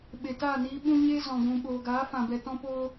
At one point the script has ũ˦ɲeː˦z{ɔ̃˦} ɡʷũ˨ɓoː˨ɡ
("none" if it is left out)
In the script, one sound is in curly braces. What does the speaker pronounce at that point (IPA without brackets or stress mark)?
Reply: ɔ̃˨